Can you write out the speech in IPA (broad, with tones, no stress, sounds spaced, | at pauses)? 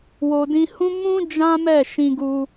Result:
w o˨ d ĩ˧ h ũ˦ m ũ˦ d͡ʒ ã˦ m ɛ˦˨ ʃ ĩ˧ ɡ u˧